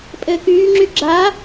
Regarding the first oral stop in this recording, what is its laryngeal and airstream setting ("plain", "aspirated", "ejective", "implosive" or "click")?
ejective